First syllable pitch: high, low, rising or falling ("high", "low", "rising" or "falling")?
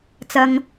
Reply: low